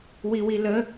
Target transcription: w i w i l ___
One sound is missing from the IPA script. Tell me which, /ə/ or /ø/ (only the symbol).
ə